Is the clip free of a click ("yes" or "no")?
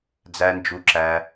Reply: no